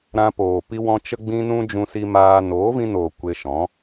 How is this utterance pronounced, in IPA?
ɾã˧poː˨pi˧wɔ̃˧ t͡ʃə˦ɡ͡bĩ˦nũ˦ d͡ʒũ˧si˧maː˧ noː˨˦vĩ˧noː˨ kʷe˧ʃɔ̃˨˦

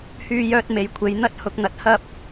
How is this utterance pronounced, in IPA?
hyː˧jœː˧t̚ me˨jkʷʰe˨˧j n̪ɐ˧t̚ hʊ˧k̚n̪ɐ˧t̚hɐ˥p̚

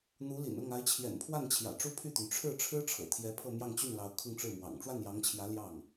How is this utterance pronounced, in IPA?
n̪u˧˥lḭ˨˩nʊ˥˩ŋ a˧˥ɪ̯t͡ɕʰjɛ̰˨˩npʰwa˥˩nt͡ɕʰjä̰˨˩ ʈ͡ʂu˥pʰy˥˩t̪y˩n ʈ͡ʂʰɻ̩˥˩ ʈ͡ʂʰɻ̩˥ʈ͡ʂʰɤ̰˨˩t̪ʰjɛ˧˥ pʰɤ˥˧mjɑ˥˧ŋt͡ɕy˥˩nlɑ˧˥ʊ̯ kʰʊ˥˧ŋʈ͡ʂɻ̩˥˩mwɑ̰˨˩ŋ ʈ͡ʂwa˥˩njɑ˧˥ŋt͡ɕʰjä˧˥ ljɑ˥˩ŋ

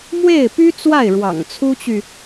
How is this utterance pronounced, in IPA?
mwe˥˩ɪ̯py˥t͡swa˥˩ɪ̯ ɻwɑ̰˨˩ŋ t͡sʰu˥t͡ɕy˨

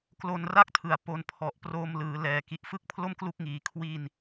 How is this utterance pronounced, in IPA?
klo˧nra˥˩k̚tʰɯ˩˦a̯ po˧npʰɔ˨˩ʔ proː˧mlɯː˩˦ lɛː˨˩ki˨˩ʔ fɯ˥˩k̚pʰlo˥˩mklu˦˥k̚ŋiː˩˦ kʰwi˧n

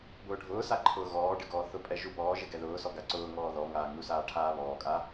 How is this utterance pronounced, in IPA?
bʊːɖʱʊːsa ǃʰʊːɣɔːɖɪ ɡɔːθʊpʼɛ ʒubɔːʒɪ ɡɛðʊːsɔ ɡaǀʊːŋɔː ðɔ ŋaːŋusaː ʈʰaːβɔːkʼa

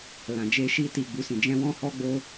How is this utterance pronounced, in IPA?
lã˨d͡ʒe˧ʃi˧ ti˨ɡ͡bu˨ sĩ˨d͡ʒɛ̃˧wɔ̃˧ hɔ˧ɡ͡bo˧

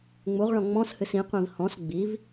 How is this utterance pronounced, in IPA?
ŋ͡muʁɭɔ̃ ŋ͡mɔ̃shɨs ĩqʷĩv hɔ̃s ɡ͡biv

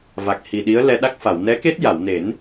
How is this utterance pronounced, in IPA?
va˨˩k̚hi˨˩ɗi˧˥ə̯lɛ˧ ɗa˦˥k̚fa˨˩˨w nɛ˧˥ke˦˥t̚ja˨˩˨wne˨˩˦n

